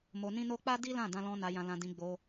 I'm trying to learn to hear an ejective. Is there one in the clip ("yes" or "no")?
no